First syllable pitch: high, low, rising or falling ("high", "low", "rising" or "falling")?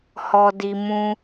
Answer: low